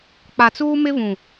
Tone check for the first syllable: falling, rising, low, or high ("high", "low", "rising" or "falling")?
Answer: low